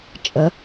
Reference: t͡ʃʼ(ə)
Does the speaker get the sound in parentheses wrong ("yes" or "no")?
no